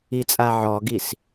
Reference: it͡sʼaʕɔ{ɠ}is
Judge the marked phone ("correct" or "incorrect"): incorrect